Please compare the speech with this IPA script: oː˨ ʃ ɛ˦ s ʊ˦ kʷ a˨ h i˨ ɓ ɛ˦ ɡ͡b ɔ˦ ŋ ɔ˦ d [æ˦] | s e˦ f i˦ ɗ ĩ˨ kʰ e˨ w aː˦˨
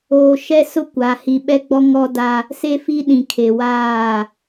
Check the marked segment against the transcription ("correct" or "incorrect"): incorrect